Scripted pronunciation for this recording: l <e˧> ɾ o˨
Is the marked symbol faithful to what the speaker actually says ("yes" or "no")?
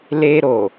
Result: yes